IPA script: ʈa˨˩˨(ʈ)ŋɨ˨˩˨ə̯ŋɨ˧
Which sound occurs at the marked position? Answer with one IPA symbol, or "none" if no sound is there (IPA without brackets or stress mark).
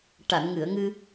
n